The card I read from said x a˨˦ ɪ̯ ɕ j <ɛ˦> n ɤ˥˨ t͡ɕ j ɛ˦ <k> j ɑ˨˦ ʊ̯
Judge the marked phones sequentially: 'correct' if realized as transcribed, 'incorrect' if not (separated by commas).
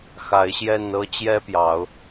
incorrect, incorrect